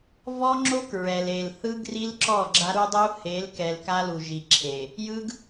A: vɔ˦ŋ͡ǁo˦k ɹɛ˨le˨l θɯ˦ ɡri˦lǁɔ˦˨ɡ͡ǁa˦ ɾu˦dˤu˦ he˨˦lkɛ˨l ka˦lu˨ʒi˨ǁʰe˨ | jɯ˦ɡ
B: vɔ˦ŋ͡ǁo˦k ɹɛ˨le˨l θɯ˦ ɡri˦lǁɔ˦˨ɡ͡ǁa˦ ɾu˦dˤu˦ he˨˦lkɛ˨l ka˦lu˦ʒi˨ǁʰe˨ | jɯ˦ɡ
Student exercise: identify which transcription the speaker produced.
A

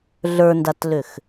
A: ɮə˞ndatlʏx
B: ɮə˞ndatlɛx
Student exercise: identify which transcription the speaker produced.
A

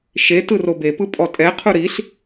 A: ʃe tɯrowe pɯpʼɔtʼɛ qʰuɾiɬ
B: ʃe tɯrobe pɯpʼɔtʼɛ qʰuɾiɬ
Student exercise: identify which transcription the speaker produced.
B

